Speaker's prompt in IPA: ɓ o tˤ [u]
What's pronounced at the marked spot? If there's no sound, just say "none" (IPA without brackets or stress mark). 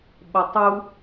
u